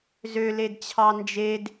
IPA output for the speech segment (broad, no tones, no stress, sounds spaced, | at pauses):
z ø l e d t͡ɕʰ ɑ n d͡ʒ e d